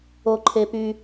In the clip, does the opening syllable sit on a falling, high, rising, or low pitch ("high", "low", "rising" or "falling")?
low